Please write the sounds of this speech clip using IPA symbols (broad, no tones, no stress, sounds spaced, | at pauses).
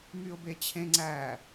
m y ʊ̯ b e t͡ɕʰ ẽ ŋ͡ǀ æ